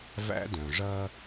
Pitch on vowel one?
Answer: high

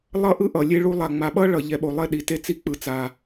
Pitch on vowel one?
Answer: falling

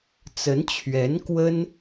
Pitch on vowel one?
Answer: rising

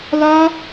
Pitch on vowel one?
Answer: high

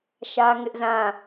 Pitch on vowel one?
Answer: high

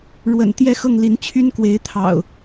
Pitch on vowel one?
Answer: low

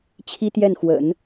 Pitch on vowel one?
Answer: high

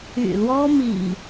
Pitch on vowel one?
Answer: low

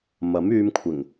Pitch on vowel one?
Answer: rising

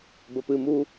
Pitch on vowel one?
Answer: low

